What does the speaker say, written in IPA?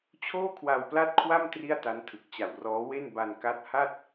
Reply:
t͡ɕʰ oː˥˩ kʰ w a˧ w p l a˥˩ t̚ kʰ w a˥˩ m t r i˥˩ a̯ t a˦˥ n tʰ ɯ˨˩ k̚ t͡ɕ a˨˩ w r ɔː˦˥ w e˥˩ n b a˧ n k a˦˥ t̚ h a˥˩ t̚

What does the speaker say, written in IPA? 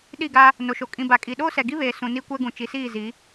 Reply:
ɗ i˦˨ ɡ a˦ | n o˨ ʃ o˨ kʼ ĩ˨ b a˨ kʼ i˨ ɗ oː˦ s ɛ˨ ɡ i˦ β eː˨ s ũ˨ n i˦ kʷ ɛ˦ ɡ ũ˨ t͡ʃ i˨ s iː˦˨ z i˨˦

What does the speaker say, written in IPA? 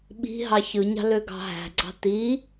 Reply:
ɓ i̤ ɦ ɑ ç ɯ ɲ ɑ̤ l ø ɡ ɑ̤ ɦ æ̤ ɡ͡ǀ ɑ̤ t i

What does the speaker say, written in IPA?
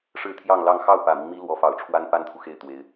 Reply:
ʂ ɻ̩˥˧ t̪ʰ j ɑ˥˧ ŋ l ɑ˥˧ ŋ x ɑ˥˩ ʊ̯ p ä˨˩ m i˦ ŋ m i˥ l w ɔ˧˥ f ɑ˨˩ ʊ̯ ʈ͡ʂʰ w a˥ n p a˥ n t̪ʰ u˨ x e˥˩ ɪ̯ t̪ w e˧˥ ɪ̯

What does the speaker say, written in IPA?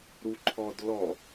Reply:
ɾ u ǃʰ ɔ d l ɔ

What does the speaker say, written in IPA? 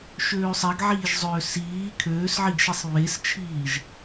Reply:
ʃ øː sˤ ɛ ɡ ʕ iː ʒ zˤ øː s iː kʰ øː s ʕ i ɡ ʃ i sˤ β e s t͡ʃʰ iː ʒ

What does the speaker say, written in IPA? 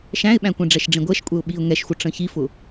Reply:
ʃ æ̃ ɪ̯ ɓ æ̃ kʷ ɛ̃ ɖ͡ʐ ɛ ʃ ɖ͡ʐ ĩ ɡʷ ɛ ʃ kʷʼ ɛ ʊ̯ ɓ i ʊ̯ ŋ ɛ ʃ xʷ ə ʈ͡ʂ ə̃ ç i f ʊ

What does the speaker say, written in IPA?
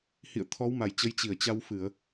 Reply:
h ḭ˧˨ ə̯ t̪ʰ ɔ˨˦ w m a˧˩ j t͡ɕ ə˨˦ j t͡ɕ i˧˩ ə̯ t͡ɕ a˧ w f ɨ˧˩˨ ə̯

